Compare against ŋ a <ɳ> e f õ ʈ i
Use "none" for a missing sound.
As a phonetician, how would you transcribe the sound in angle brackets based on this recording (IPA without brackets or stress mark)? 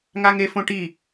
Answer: ŋ